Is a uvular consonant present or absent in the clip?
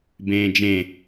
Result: absent